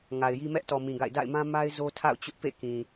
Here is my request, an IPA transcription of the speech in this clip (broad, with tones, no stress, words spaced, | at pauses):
ŋa˨ɪ̯ji˦ mɛ˦ʔtɔ˨ mĩ˨ɡa̰˦˨ɪ̯ da̰˦˨ɪ̯ mã˦ ma˦ɪ̯ zo˦tʰa̰˦˨ʊ̯t͡ɕʊ˦ʔ pḛ˦˨ kĩ˨